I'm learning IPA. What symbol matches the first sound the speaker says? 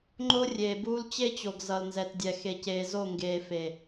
ŋ͡ǃ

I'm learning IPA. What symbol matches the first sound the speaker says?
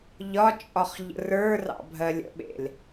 ʎ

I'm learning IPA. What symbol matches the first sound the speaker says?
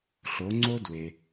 ɬ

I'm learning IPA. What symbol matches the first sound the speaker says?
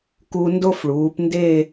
k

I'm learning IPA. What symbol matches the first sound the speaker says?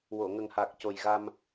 w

